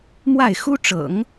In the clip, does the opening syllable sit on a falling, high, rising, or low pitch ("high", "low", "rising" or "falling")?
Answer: falling